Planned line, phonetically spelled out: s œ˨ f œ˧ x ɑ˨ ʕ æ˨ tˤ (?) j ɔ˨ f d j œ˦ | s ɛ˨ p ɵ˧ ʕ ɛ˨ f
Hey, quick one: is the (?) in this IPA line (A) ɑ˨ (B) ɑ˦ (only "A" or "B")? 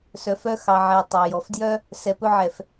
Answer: A